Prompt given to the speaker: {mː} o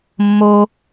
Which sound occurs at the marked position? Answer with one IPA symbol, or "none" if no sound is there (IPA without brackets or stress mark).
mː